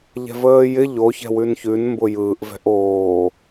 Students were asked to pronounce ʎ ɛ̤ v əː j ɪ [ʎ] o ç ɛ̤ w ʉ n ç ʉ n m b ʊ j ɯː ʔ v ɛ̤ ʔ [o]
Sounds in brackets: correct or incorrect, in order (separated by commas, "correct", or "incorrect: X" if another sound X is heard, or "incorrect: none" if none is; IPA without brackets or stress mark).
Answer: correct, incorrect: oː